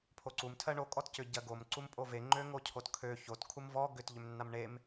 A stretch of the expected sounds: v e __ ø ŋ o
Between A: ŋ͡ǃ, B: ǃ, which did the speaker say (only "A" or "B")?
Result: A